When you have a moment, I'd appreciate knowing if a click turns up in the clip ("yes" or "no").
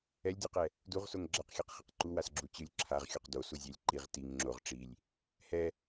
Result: yes